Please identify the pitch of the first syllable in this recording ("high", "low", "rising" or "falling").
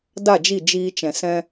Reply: falling